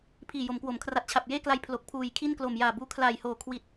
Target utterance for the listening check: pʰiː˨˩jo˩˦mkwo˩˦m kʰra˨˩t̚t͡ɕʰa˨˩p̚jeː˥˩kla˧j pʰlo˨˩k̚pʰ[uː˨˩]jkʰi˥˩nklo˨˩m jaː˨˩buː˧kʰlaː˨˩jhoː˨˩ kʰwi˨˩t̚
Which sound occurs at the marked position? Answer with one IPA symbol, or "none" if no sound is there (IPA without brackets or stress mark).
uː˨˩